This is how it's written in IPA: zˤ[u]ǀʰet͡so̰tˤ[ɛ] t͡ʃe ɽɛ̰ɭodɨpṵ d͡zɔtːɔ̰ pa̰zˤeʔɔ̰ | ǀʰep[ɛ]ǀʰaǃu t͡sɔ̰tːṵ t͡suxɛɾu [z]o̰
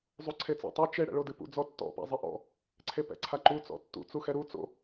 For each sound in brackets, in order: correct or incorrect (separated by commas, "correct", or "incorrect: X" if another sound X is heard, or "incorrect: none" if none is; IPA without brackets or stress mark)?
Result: correct, incorrect: ɨ, incorrect: ɛ̰, incorrect: t͡s